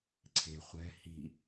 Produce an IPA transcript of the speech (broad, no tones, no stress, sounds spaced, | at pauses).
ǀʰ e̤ χʷ ɛ̤ h i̤